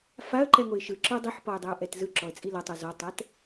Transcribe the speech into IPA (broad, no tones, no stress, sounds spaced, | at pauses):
f a ə̯ ǃ ɛ ŋ o ɪ̯ ʃ ɯ ǁ ɯ dˤ i ħ p ɔ ɪ̯ dˤ ɛ ʊ̯ ʔ ɛ t z ɯ ǁ ɔ ə̯ t͡sʼ i l ɤ tˤ u z ɔ tˤ ɛ t